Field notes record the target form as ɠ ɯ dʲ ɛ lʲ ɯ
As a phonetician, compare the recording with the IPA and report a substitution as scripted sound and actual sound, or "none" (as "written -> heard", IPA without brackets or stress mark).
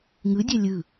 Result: ɠ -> ŋ